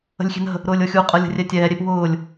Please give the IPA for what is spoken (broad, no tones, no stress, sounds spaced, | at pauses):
ə̤ lʲ xʲ e̤ n ə̤ | ɾ ʊː lʲ ɤ xʲ u qʼ ɤ lʲ ə̤ rʲ ɛ tʲ ɛː ɾʲ e p w ʊː lʲ